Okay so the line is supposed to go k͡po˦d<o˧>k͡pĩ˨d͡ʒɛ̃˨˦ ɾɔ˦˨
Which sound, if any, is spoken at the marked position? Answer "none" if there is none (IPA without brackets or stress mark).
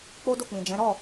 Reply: o˦˨